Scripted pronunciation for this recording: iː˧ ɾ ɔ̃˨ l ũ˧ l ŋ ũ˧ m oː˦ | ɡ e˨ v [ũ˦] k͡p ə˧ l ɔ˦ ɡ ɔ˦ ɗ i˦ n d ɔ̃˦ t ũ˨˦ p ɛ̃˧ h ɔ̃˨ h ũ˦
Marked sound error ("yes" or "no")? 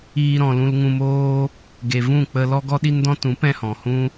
yes